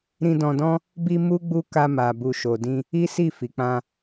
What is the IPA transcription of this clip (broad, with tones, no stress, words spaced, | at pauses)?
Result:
ɾĩ˧dɔ̃˧dɔ̃˦ | bi˧ mu˦ɡ͡bu˦ ka˧ma˨ bu˨ʃo˨dĩ˧ | i˦ si˦˨fi˨k͡pã˧